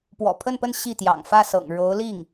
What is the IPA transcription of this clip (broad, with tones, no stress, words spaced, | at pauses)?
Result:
pwɔ̰˨˩pʰə˥˧npə˥˧n ɕi˥˩t̪jɑ̰˨˩ŋ fä˥˩sɤ̰˨˩ŋ ɻo˧˥ʊ̯li˥˩ŋ